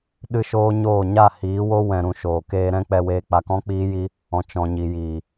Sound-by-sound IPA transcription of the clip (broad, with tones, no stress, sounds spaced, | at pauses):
ɗ ɨ˦ ʃ oː˦ ɲ oː˦˨ ɲ a˦˨ h iː˨˦ w o˦ w ɛ̃˧ ɾ ũ˧ ʃ oː˨ k eː˧ ɾ ɛ̃˦ k͡p ɛ˧ w eː˧ k͡p a˧ k ɔ̃˦ k͡p iː˦ j i˦ | ɔ̃˨ t͡ʃ ɔ̃˨ ɲ i˨ j iː˨